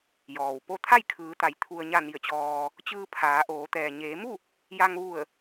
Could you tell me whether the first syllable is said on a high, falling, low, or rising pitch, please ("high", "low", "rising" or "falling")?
low